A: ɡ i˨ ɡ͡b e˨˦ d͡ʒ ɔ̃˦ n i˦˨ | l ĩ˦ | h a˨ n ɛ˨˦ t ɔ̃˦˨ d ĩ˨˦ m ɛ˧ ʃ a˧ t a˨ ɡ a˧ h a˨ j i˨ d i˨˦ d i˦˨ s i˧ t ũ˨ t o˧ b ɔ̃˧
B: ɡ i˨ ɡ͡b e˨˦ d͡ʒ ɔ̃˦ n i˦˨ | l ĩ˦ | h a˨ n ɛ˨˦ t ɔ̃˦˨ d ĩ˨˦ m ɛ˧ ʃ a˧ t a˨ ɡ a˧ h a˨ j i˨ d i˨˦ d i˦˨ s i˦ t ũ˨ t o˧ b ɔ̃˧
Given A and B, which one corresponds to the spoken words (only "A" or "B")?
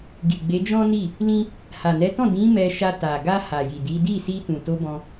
A